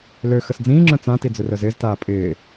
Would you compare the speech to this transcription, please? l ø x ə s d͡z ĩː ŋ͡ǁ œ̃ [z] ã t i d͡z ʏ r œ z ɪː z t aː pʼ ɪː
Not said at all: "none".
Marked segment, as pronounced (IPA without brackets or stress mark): t͡s